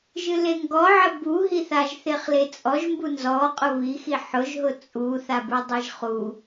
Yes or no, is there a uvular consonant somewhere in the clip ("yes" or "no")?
yes